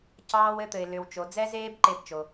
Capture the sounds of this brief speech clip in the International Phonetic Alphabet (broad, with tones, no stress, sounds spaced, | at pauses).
c ɑː˦ w ɘ˦ t̪ ɘ˩ ɪ̯ l ʏ˩ w t͡ʃ o˩ d͡z ɛ˦ z eː˦ b ǃ e˦ b t͡ʃ o˩